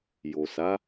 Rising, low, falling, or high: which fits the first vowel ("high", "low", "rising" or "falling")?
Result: low